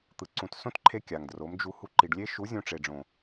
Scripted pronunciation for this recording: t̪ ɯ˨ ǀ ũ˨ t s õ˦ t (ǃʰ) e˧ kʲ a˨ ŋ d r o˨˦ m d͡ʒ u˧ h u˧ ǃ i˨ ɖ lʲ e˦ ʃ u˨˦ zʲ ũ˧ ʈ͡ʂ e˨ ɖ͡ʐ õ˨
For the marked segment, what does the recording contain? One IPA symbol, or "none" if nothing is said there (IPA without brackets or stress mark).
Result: ǃʰ